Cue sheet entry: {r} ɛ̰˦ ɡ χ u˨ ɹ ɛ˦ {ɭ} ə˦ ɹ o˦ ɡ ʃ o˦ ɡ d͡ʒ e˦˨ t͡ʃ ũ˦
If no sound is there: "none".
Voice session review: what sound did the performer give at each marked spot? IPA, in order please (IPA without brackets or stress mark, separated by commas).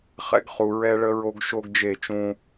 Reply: χ, ɭ